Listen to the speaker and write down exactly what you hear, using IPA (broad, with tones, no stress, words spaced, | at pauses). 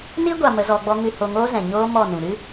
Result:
ni˦ ɡʷa˧mə˨˦zɔ˧ɡ͡bɔ˦ ŋɨ˧ho˧ŋoː˦ zɛ̃˨ɲoː˦mɔ˦˨nũ˨ ɾɨ˦